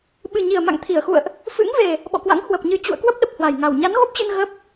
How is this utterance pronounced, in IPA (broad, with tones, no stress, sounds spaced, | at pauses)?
ɓ ɨ˨˩ ɲ i˨˩ ə̯ m a̰˧˨ ŋ t̪ʰ i˧˩ ə̯ x ṵ˧˨ ə̯ ʔ | f ɨ̰˧˥ ŋ v e˨˩ | ɓ ɔ̰˧˨ k w a̰˧˥ ŋ h w ə˨˩ p̚ ɲ ɨ˨˦ t͡ɕ ṵ˧˨ ə̯ k w ə˦˥ p̚ ɗ ə˨˩ p̚ h w a˨˩ j ŋ a˨˩ w ɲ a˨˦ n ɣ o˦˥ p̚ t͡ɕ ɨ˧ n ɣ ə˦˥ p̚